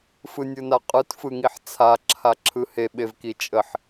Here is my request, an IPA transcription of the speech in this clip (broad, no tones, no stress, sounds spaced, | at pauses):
f ɯ nʲ ɯ n a qʼ ɯ t f ɯ ŋ i ħ t͡sʰ a ǁʰ a ǁʰ ɯ h e ɓ e v k i t͡ʃʼ ə ħ